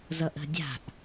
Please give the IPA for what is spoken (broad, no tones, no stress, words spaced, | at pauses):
zʌʔə̤ dʲa̤ʔ